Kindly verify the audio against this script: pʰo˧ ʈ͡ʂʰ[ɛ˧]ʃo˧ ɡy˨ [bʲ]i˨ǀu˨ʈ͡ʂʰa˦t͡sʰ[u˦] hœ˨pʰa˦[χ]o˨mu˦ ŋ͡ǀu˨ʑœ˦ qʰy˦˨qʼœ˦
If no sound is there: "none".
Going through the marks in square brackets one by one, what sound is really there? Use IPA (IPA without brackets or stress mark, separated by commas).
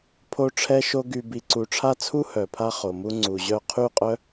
ɛ˧, b, u˦, χ